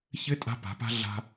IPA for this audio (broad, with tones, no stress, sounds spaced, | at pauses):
ç ɘ˧˥ tʼ a̤˧ p a̤˩˧ p a̤˧ ɮ a̤˧